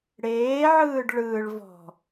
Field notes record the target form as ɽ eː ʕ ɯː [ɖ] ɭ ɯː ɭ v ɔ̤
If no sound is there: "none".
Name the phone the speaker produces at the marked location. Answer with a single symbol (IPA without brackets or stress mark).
ɖ